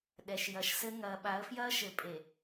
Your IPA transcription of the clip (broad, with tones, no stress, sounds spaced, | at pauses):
ɗ ɛ˨ ʃ j ɐ˨ ʃ s ɘ˦ ŋ ɐː˨ ɓ a˨˦ ə̯ f j ɐː˦ ʃ ɘ˨ pʼ e˨